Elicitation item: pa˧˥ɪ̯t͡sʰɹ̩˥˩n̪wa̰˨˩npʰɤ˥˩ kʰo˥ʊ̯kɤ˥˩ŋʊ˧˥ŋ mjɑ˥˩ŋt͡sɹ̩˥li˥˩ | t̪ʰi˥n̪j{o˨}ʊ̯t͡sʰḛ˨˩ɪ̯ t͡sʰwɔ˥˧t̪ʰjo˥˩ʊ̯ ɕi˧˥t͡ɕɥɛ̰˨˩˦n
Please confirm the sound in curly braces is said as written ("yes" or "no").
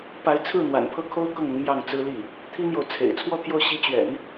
yes